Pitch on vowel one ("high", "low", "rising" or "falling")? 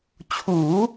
rising